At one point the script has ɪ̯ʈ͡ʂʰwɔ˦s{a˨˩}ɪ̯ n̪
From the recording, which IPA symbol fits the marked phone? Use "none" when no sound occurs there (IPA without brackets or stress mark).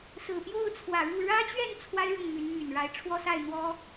a˥˨